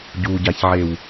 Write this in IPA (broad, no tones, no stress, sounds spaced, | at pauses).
ɟ u ɟ a ç ʕ e w